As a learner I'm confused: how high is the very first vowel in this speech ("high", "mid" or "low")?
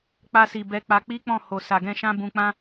low